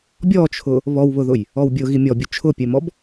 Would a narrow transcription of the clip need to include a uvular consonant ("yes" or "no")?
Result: no